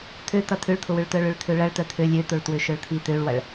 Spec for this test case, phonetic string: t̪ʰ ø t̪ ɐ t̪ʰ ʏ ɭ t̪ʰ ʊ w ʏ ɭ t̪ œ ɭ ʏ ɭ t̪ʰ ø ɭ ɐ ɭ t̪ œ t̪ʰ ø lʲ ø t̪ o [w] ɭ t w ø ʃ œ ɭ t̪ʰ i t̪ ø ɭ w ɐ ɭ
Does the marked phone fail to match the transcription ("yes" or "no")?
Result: yes